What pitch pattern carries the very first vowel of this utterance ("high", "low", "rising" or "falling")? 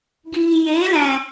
low